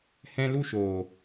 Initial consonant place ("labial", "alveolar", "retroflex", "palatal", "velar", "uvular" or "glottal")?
glottal